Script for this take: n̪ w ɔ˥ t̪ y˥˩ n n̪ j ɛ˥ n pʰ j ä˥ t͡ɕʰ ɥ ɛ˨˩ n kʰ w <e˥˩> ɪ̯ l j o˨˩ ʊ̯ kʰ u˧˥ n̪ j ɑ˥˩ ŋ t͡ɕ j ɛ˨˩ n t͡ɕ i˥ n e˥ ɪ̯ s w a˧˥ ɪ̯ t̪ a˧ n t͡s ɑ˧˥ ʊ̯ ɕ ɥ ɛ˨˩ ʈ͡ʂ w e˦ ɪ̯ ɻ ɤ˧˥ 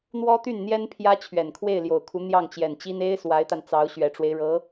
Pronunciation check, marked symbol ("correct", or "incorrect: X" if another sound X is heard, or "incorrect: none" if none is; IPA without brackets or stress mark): correct